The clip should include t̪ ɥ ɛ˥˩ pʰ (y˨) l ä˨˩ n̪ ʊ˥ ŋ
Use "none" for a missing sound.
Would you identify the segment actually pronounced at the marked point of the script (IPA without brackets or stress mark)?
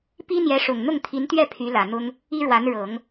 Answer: y˧˥